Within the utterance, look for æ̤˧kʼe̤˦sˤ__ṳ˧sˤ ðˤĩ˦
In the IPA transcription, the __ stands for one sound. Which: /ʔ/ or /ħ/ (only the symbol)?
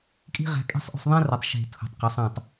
ʔ